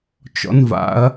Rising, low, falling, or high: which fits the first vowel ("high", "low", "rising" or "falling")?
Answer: rising